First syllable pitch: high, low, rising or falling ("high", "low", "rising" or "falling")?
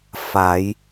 rising